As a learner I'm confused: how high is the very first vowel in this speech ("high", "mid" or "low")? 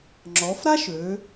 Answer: mid